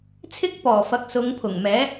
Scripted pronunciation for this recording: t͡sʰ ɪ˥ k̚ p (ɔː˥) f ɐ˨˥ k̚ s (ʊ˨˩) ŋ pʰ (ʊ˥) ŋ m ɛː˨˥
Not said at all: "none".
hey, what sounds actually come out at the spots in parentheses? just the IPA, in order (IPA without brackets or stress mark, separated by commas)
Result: ɔː˨˩, ʊ˨˧, ʊ˨˩